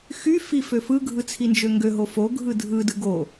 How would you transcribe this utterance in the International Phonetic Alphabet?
x y f i f ø f ɯ ɡʱ ɯ t͡sʰ i n d͡ʒ ø ŋ ɡ ø ɦ o f o ɡʱ ɯ dʱ ɯ d ɯ ɡ o

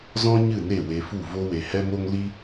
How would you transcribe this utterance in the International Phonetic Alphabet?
z ɔ̃˦ ɲ ɨ˦˨ n e˦˨ w e˧ f u˦˨ v o˧ w e˨ h ɛ˦ m o˦ ŋ l i˦

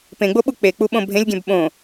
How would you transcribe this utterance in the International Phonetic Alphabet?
p ẽ ɡ͡b o ɓ u k͡p e k͡p u ɓ õ bʱ ẽ lʲ ɡʲ ɛ̃ b ɓ õ

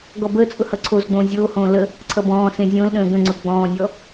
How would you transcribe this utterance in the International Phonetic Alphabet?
ɡ ɔ b əː t͡sʼ ʊ h ʌ ǀʰ o z ɡ͡b õː zʲ oː h õː l ə | ǀʰ ʌ b ɔ̃ː s ẽ zʲ õ l ɗ ə̃ː ɡ ə̃ ŋ͡ǀ ʊ ɡ͡b ɔ̃ː nʲ ɔ

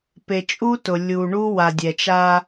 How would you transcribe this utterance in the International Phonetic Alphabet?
p e˨ t͡ʃʼ u˦ t ʊ˨ lʲ u˨ ɳ u˦ w a˨ dʲ ɛ˨ t͡ʃ a˦

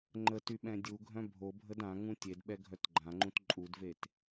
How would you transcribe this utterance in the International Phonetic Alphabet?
ŋ͡ǃ ə t y ɓ ɛ̃ dʲ u ɡʱ œ̃ bʱ o bʱ ə d ã ŋ ũ tʲ e d ɓ ɛ ɡʱ œ t ɡ͡ǃ ã ŋ͡ǃ ũ t ǃʼ u d v e t

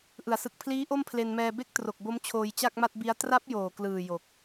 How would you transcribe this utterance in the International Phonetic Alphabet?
ʔ ɯ˩˦ a̯ s ɯ˨˩ k̚ pʰ l iː˦˥ ʔ o˥˩ m pʰ l e˧ n m ɛː˧ b e˥˩ k̚ t r o˨˩ k̚ b o˦˥ m t͡ɕʰ oː˧ j t͡ɕ a˥˩ k̚ m a˥˩ t̚ b i˦˥ a̯ t r a˦˥ p̚ j oː˨˩ k l ɯː˨˩ j o˨˩ k̚

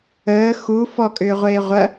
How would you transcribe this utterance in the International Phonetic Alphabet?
əː x u f ɔ kʼ ʏː ʁʷ eː ʁʷ ɐ

